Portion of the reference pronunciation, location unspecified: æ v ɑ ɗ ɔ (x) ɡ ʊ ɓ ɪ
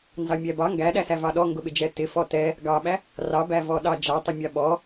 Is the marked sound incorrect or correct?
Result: incorrect